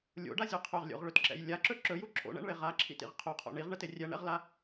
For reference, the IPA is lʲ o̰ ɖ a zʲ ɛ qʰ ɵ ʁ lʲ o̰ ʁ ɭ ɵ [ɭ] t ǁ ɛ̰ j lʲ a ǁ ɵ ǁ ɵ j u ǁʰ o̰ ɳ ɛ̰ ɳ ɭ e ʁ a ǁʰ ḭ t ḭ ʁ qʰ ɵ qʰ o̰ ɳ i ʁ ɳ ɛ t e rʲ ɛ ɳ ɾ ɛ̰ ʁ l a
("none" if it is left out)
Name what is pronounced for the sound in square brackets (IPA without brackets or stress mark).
none